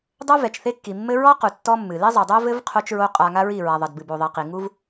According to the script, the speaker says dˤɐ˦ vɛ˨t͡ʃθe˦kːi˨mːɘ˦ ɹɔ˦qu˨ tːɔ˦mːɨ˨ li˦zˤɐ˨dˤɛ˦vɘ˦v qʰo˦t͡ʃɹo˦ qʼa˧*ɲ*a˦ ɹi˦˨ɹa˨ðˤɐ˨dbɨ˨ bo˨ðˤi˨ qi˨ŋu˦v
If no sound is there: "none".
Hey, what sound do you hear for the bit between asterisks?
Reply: ŋ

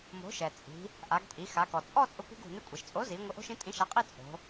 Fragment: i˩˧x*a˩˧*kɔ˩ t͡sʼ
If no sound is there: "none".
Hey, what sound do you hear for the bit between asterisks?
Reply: a˩˧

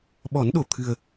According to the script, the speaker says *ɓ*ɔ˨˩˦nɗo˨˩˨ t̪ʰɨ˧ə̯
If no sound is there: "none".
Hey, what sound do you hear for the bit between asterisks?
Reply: ɓ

